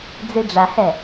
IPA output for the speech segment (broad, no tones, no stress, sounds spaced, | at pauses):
d͡z i ɖ͡ʐ a h ɛ